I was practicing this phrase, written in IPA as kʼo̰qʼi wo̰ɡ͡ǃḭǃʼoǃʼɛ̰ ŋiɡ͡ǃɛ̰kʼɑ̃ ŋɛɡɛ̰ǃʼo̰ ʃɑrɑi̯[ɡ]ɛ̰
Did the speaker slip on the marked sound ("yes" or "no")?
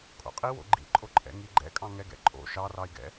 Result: no